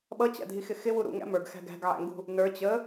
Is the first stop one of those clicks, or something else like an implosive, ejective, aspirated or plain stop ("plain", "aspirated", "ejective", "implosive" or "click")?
implosive